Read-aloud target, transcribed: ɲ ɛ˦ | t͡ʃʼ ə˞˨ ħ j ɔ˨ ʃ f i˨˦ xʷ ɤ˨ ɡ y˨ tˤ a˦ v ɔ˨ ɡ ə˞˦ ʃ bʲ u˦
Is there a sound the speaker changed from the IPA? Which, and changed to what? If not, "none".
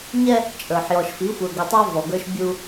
ɤ˨ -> ə˞˨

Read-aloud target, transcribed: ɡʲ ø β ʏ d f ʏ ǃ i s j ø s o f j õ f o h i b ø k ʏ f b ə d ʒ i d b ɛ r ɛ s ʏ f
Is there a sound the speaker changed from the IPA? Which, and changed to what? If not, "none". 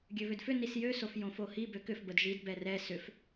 ǃ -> n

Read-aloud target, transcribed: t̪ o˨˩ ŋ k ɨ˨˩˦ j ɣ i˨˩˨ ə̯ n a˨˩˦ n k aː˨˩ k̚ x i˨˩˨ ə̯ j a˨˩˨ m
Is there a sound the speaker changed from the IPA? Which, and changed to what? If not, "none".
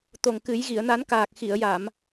none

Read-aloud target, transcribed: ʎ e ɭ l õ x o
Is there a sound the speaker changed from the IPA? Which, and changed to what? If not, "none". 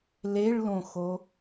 ʎ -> l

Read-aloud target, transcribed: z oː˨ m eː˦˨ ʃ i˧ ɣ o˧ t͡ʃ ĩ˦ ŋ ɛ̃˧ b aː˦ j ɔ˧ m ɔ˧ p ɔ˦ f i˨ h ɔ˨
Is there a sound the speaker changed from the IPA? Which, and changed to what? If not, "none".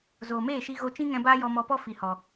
none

